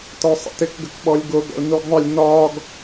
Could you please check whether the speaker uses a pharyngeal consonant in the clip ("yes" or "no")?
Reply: no